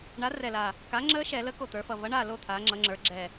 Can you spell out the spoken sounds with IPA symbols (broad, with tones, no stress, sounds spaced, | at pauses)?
ɳ a˨˥ r ɛ˨˩ l a˨˩ | k a˨˥ ŋ͡ǁ əː˦˥ ʃ ɛ˧˩˧ l ə˨˥ k o˨˩ t̪ ə˞˩˧ f ʌ˨˩ v ʌ˨˥ ɳ aː˥˨ l o˥˨ t̪ʰ aː˩˧ ŋ͡ǁ ʌ˩˧ ŋ͡ǁ ə˞˩˧ ɡ͡ǁ ɛ˨˩